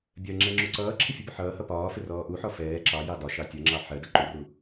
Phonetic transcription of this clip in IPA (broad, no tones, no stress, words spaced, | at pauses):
bʲɜŋ͡ǁɛ ŋ͡ǁuǀʌːǁʰɪ fʲubʊħʌːhʌ pɒːfɪ rɔːʔuħɔ fɛː ǁɑjɑ dɒʃɑ tʲʌŋ͡ǁɑ ħɜdʌ ǃuru